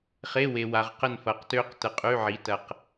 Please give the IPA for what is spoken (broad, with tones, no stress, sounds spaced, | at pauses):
χ e˧˥˧ w e˨ w a˨ ʁ q ə˦˨ n f ɐ˩˥ q t ø˦˥ q t ə˨ qʼ y˧˥˧ ʕ i˩˥ t ɐ˨ q